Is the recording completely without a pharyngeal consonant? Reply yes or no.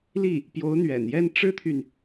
yes